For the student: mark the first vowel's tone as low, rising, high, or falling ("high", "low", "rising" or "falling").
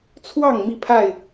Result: falling